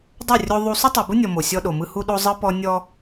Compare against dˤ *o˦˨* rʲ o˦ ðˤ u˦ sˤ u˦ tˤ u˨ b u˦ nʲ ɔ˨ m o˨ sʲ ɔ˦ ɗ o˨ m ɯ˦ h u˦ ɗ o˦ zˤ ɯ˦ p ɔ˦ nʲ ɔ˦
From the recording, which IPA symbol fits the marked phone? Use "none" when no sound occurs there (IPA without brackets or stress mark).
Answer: o˦˨